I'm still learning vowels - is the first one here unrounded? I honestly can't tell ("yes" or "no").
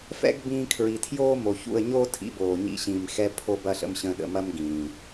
yes